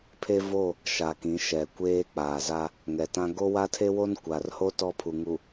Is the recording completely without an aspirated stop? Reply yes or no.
no